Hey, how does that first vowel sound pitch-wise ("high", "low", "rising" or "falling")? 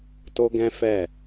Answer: high